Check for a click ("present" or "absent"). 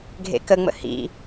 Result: absent